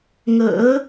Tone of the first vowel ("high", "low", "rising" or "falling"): rising